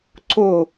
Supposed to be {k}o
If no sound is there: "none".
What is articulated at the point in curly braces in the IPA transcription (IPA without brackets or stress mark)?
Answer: ǀ